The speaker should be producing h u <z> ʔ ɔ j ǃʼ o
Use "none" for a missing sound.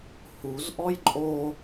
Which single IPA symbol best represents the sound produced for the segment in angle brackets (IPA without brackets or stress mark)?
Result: z